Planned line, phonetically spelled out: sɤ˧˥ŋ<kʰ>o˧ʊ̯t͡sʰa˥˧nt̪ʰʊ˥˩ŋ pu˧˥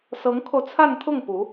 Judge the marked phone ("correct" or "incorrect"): correct